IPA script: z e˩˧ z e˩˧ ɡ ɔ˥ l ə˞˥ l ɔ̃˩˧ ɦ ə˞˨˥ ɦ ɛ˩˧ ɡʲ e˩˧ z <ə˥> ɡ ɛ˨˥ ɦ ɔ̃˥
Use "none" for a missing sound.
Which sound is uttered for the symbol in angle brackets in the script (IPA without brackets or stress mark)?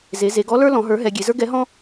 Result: ə˞˥